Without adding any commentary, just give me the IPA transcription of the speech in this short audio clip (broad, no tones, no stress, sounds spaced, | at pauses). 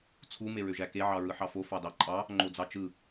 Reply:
t͡sʰ u m e ɹ ø ʒ æ k e ʕ ɑ ɹ ɯ ħ ɑ f o f ɑ d ɑ ǃʼ ɑ | ŋ͡ǃ o d͡z ɑ t͡ʃ ɯ